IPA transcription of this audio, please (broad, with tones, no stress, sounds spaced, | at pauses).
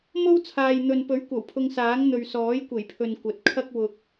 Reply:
m o˥ w t͡sʰ aː˨ j n̪ ɵ˨ n p ɵ˨˥ ɥ kʷ ɐ˨˩ w pʰ ʊ˧ ŋ s aː˨˥ ŋ n̪ ɵ˨ ɥ s ɔː˨˥ j kʷ e˨˩ j pʰ ɵ˨ n kʷ ɐ˨ t̚ kʰ ɐ˥ k̚ w ʊ˧ k̚